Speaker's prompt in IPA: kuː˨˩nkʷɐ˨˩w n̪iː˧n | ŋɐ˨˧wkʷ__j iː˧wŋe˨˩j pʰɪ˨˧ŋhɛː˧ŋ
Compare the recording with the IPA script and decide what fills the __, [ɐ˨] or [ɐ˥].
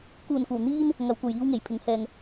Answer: ɐ˨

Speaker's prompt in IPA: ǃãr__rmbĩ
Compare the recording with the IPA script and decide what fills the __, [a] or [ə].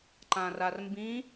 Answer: a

